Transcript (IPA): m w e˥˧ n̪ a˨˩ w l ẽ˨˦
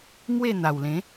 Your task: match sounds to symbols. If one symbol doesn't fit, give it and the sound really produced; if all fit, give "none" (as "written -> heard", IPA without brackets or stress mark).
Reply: none